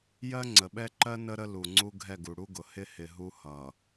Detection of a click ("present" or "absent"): present